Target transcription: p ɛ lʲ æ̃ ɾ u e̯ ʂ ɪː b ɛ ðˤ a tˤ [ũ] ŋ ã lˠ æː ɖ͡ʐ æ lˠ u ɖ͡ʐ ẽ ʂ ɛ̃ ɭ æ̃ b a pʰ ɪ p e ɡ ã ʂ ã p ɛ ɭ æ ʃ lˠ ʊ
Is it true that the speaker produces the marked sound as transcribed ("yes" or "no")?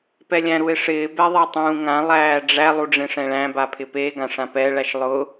no